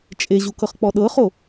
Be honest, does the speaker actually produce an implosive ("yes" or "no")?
yes